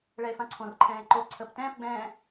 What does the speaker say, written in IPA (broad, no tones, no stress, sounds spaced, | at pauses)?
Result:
ɭ ɛ e̯ f ã ǀʰ õ r ǃʰ ɛ̃ː e̯ ǃ o ǀʰ ə p t ɛ̃ː p ɡ͡b ɛ̃ː